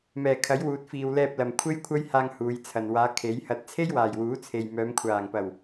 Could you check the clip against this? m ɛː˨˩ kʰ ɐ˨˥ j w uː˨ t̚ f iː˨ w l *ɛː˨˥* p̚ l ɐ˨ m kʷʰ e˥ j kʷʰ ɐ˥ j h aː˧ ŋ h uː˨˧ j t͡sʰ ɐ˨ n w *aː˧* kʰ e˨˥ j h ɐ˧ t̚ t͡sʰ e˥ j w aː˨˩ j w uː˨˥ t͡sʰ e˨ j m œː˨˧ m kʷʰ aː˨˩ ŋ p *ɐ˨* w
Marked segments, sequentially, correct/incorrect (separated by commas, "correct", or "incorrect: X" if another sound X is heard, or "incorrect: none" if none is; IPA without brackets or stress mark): incorrect: ɛː˧, incorrect: aː˨˧, incorrect: ɐ˨˩